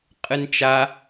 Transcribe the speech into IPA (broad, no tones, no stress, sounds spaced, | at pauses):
qʼ ɨ n t͡ʃ a